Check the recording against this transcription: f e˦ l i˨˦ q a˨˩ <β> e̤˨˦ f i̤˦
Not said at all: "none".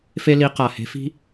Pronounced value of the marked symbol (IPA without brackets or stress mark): h